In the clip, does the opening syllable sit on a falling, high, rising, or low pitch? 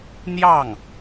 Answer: falling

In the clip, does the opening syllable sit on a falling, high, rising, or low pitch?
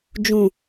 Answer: low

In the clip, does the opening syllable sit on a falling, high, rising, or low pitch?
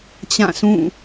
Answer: falling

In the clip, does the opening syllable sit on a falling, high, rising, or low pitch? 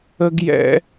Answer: high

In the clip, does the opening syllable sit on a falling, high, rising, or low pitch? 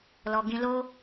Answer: low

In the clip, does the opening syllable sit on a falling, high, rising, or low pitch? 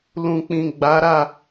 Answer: low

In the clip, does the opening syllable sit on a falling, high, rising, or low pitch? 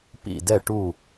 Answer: falling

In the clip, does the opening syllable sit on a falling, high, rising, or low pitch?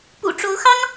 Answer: low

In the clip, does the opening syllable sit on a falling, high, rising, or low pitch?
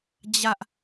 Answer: high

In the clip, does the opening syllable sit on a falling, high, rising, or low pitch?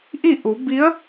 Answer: falling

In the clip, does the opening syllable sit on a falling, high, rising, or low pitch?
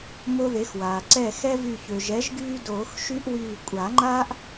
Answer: high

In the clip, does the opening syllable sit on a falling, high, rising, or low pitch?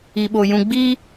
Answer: low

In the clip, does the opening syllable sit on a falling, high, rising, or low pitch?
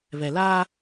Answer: low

